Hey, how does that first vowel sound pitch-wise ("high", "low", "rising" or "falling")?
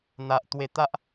low